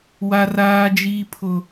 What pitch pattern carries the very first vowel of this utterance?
high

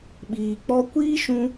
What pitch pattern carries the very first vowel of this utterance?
low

